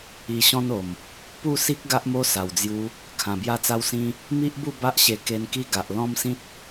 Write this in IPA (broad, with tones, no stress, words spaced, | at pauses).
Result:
i˧ɕɔ̃˦no˨˩m | pu˥˧si˦k̚ ɡa˦ʔmo˦sa˨˩wd͡zju˧ | kʰã˨˩bja˧t͡sa˧wsĩ˧ | mi˦ʔbu˥˧ ba˦ʔɕe˧ ke˧nki˦ ɡa˨ʔ lɔ̃˦msĩ˦t̚